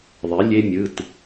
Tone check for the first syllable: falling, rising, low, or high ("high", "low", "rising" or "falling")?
rising